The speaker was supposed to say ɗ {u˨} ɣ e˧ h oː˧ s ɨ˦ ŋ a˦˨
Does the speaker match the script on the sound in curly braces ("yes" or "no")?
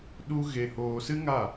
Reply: no